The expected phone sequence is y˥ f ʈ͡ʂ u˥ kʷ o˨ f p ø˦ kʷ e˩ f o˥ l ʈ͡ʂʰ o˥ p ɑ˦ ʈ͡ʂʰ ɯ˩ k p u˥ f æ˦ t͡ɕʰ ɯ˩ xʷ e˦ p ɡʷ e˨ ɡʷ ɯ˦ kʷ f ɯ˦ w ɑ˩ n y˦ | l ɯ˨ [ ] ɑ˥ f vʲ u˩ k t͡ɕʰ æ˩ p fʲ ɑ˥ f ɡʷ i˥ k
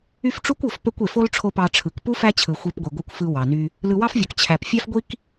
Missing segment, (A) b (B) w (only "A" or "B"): B